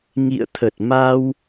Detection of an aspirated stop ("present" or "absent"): present